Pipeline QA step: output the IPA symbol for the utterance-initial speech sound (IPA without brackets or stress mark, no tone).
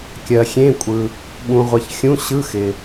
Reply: kʲ